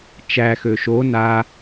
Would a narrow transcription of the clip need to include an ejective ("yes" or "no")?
no